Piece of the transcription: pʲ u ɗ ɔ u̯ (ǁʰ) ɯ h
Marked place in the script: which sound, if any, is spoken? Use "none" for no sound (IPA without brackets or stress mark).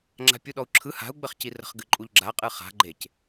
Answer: ǁʰ